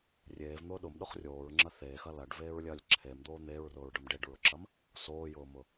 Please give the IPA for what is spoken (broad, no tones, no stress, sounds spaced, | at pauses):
rʲ eː v n̪ ʊː ɗ ʊ m ɗ ʊ χ rʲ oː ɹ ŋ͡ǁ ɐ θ eː x ɐ l ɐ ɖ v eː ɹ lʲ ɐː lʲ ǁʰ e m d̪ oː n̪ eː ɹ r ʊː ɹ ɖ ʊ m ɖ e ɖ ɹ ʊ ǁ ɐ m | s oː j ʊː m ʊ